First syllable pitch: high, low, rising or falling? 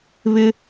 high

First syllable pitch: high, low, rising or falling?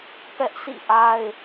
high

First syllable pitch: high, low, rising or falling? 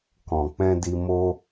low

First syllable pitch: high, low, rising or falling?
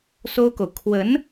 high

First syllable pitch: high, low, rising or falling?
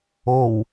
low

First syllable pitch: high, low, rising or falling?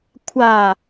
low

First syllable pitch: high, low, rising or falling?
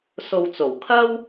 low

